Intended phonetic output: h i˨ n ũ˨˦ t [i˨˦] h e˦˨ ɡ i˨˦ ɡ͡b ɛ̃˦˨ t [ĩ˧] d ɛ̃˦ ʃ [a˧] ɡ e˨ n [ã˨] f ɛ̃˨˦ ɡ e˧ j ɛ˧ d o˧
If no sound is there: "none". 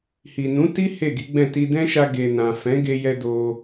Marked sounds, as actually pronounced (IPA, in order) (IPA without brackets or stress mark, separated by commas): i˦, i˧, a˧, ã˨